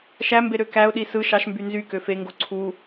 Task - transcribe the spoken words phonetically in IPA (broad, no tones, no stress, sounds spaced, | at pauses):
ʃ æ m b e ɾ ø k æ ʊ̯ ɗ i s ɯ ʃ ɑ ʃ m b y n z y k ø f e ŋ ɡ o ǀʰ u